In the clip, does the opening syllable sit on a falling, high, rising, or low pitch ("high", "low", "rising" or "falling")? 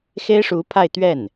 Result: high